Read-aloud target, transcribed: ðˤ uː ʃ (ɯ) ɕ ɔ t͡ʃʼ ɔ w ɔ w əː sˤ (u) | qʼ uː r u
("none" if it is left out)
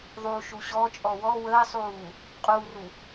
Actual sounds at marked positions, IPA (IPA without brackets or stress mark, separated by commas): u, uː